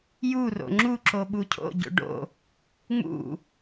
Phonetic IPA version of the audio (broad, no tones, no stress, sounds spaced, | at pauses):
j u r o̰ ŋ͡ǁ u ǁ o ɓ u cʰ o̰ ɟ o̰ ɖ o̰ | ŋ͡m ṵ